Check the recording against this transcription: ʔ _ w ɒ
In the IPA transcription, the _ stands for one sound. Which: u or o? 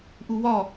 u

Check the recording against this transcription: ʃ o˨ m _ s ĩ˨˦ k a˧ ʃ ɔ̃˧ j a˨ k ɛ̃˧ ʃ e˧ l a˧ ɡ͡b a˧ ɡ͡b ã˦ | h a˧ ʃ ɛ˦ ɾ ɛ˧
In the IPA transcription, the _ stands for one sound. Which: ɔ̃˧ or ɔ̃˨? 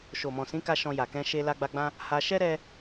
ɔ̃˨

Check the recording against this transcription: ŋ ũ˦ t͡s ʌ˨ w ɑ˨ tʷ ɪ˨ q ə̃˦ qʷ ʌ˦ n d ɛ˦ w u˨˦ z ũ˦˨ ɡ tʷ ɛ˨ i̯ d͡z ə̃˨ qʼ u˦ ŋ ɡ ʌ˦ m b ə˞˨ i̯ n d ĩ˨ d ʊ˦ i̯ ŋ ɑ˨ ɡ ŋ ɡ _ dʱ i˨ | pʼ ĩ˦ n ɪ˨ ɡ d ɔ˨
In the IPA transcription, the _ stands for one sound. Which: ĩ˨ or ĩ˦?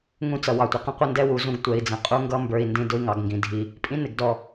ĩ˨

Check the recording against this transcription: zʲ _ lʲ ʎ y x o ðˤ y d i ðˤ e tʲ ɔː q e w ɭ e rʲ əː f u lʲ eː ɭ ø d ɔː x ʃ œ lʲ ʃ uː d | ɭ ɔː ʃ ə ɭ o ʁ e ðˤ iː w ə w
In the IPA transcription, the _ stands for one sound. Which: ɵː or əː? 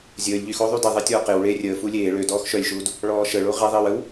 əː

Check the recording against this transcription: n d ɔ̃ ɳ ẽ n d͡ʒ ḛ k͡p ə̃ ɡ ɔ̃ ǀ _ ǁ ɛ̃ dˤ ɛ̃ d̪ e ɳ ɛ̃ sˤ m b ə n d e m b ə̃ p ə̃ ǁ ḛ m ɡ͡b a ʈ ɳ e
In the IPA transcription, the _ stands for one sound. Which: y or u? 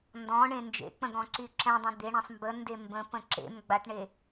y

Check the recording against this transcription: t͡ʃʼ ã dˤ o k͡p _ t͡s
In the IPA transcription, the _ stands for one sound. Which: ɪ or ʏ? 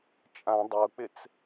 ɪ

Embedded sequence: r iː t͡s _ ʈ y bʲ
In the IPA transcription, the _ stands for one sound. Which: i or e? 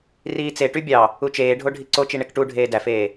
e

